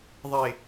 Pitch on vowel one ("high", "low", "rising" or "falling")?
falling